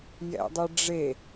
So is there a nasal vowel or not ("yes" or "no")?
no